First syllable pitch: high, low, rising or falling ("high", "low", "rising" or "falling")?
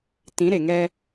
rising